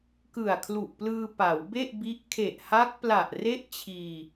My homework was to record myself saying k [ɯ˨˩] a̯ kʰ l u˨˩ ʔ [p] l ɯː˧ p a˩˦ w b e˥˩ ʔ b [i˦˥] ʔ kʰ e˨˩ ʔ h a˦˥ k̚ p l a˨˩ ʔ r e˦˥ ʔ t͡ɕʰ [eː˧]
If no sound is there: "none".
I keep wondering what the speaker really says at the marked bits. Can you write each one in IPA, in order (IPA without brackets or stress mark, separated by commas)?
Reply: ɯ˨˩, p, i˦˥, iː˧